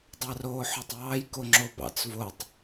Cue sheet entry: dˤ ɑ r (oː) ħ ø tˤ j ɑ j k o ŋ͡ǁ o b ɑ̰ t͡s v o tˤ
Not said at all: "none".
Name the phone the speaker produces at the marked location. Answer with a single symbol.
oː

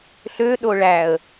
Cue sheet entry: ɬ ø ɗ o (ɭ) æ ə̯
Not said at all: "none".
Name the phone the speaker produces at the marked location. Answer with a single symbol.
ɭ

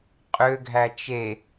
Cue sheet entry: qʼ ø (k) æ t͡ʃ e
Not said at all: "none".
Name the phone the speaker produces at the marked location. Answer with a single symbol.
ɡʱ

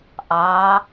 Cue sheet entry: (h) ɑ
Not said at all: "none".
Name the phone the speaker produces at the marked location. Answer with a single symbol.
ʔ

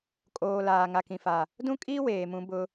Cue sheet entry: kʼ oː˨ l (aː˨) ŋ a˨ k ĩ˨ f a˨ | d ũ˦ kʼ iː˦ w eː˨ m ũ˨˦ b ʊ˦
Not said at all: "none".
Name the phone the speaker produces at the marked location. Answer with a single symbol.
aː˨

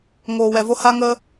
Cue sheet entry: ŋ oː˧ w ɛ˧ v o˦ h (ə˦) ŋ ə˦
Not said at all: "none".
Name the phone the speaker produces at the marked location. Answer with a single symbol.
a˦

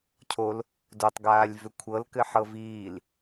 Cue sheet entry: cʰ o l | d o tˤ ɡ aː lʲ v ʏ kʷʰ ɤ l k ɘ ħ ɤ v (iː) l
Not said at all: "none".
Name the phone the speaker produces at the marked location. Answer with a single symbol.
iː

